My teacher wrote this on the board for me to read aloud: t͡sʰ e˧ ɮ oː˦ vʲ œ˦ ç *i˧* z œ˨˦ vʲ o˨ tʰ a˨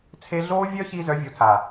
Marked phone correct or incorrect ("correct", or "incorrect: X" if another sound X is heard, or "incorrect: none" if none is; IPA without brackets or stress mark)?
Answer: correct